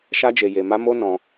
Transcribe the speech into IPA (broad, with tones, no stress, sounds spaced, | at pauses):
ʃ a˦ d͡ʒ e˧ j e˧ m a˦ m o˦ n ɔ̃˧